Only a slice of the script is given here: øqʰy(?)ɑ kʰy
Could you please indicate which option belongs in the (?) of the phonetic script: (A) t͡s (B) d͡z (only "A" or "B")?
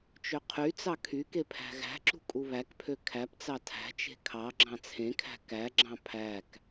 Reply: A